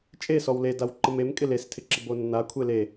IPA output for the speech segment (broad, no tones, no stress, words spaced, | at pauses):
t͡ʃʼesɔw ledaw ǃəmemkʼɪ lestʰɪǁɪ bonːakʷʰe le